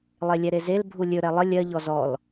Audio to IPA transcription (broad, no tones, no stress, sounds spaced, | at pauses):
lˠ e lʲ ɛ ɾ e z e l bʱ u lʲ ɵ ɾ ɛ lˠ ə lʲ ɜ ʎ ɔ z ɔ l